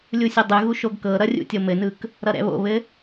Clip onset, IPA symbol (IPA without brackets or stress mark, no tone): lʲ